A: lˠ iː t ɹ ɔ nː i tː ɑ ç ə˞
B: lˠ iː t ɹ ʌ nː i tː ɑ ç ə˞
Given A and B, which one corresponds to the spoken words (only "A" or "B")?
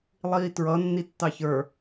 B